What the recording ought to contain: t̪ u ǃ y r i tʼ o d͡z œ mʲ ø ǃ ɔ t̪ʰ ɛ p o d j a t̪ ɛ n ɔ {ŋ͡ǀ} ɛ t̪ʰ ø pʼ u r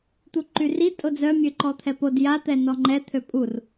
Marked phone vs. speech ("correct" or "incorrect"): incorrect